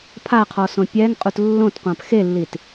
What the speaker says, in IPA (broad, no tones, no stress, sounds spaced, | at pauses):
pʰ a qʰ ɔ s õ pʲ ɛ ŋ qʼ u t lː õ t qʷ ã p x e lː i t